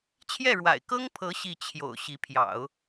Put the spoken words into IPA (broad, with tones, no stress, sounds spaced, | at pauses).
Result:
t͡ɕʰ j ɛ˥˩ ɻ w a̰˨˩ ɪ̯ k ɤ˥ ŋ pʰ ɤ˧˥ ɕ i˥˩ t͡ɕʰ j o̰˨˩ ʊ̯ ɕ i˧˥ pʰ j ɑ̰˨˩˦ ʊ̯